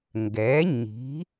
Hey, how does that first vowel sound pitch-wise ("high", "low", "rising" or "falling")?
rising